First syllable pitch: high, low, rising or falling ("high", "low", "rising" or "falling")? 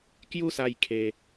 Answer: high